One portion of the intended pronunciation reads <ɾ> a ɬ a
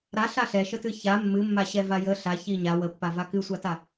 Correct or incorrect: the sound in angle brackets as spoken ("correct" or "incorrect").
correct